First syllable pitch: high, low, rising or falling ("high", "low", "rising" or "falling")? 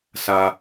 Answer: high